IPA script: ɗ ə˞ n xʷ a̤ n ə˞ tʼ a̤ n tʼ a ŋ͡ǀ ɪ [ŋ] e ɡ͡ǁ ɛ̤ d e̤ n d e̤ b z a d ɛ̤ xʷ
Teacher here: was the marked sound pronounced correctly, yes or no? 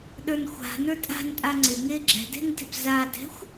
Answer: yes